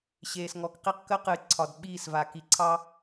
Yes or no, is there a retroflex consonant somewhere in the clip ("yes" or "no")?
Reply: no